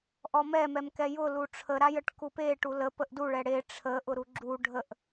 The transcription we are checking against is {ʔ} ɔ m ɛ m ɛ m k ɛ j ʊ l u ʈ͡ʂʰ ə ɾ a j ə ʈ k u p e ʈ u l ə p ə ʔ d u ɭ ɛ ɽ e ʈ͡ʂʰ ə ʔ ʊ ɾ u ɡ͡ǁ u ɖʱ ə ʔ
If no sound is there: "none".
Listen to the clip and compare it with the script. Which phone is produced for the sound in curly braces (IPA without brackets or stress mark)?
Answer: ʔ